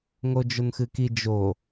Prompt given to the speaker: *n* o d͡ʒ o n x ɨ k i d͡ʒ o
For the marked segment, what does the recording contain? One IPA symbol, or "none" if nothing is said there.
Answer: ŋ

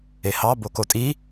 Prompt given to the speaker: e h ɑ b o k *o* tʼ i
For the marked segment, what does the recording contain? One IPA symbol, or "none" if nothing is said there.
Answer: o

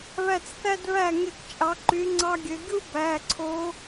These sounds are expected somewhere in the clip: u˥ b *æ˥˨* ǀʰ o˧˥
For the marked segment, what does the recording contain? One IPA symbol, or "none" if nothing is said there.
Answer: æ˩˧˩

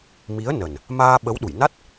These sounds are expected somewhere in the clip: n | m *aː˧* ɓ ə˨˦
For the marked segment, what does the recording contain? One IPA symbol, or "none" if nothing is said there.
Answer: aː˧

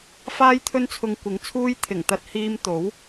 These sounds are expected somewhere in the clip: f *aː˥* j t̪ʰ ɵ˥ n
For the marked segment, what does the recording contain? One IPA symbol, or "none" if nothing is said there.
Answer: aː˥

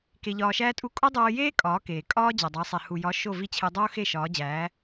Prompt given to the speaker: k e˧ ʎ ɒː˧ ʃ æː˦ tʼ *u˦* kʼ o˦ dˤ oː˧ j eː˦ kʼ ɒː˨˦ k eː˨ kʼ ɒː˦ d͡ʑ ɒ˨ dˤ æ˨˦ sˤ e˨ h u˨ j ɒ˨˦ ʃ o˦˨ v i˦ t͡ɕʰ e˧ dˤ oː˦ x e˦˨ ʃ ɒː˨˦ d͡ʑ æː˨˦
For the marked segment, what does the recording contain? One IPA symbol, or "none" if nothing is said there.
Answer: u˦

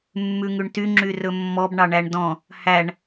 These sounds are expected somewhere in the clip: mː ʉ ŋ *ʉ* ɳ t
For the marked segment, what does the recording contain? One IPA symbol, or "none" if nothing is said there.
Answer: ʉ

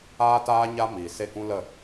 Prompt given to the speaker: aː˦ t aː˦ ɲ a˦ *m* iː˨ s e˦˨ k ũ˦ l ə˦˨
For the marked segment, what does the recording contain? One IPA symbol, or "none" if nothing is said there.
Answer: m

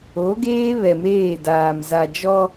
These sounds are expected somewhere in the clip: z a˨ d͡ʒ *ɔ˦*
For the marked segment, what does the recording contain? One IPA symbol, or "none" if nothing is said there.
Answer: ɔ˦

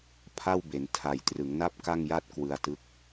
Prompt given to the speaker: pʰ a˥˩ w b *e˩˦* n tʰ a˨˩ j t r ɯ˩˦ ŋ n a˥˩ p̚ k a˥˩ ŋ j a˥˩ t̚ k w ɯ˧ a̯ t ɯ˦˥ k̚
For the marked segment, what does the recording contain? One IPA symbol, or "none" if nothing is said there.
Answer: e˩˦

